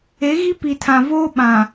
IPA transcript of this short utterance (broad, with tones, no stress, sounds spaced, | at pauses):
e˨˦ ɣ i˦ p i˨ tʰ ã˨ v oː˦ ɓ ã˨